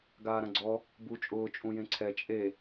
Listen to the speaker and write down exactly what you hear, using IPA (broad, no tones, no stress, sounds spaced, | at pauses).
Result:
ɡ aː ɾ ã ɡ͡ǀ ɔ | b u t͡ʃʼ ʊː t͡ʃʼ ũ j ẽ ǀʰ ɛ t͡ʃʼ e